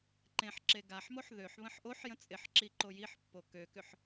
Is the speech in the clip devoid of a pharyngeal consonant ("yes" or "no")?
no